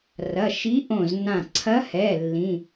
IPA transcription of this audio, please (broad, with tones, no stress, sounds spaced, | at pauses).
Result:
r ɐ˩˧˩ ʃ i˧˥ ʔ õ˧˩ z n ã˧˩ ǀʰ ɐ˧˥ h ɛ˩˧˩ lː ĩ˩˧˩